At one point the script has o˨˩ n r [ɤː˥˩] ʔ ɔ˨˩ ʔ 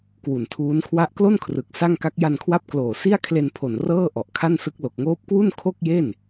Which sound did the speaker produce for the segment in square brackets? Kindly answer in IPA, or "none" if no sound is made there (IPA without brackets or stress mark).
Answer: ɤː˥˩